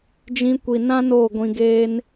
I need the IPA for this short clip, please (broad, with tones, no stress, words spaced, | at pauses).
d͡ʒĩ˧kʷi˨nã˦ noː˦˨ɡʷĩ˧ɡeː˦n